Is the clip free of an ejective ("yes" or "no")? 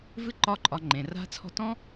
no